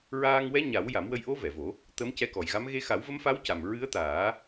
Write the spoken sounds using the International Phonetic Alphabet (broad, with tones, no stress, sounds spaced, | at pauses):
ɹ aː˧ ŋ w ɛ˧˥ ɲ a˨˩˦ w j a˨˩˦ m w ə˧ j ʔ o˧˥ v ɛ˨˩˨ v o˨˩˦ | t̪ ə˧˥ m c ɛ˧˥ k ɔ˨˩ j ɣ a˧˥ m ɣ e˧ x a˨˩˦ w v ə˧˥ m f a˧˥ w c a˨˩ m ɹ ɨ˧˥ ə̯ t̪ aː˨˩˦